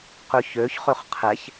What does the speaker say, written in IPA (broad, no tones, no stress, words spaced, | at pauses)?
qøçøçχøχ qʰɛç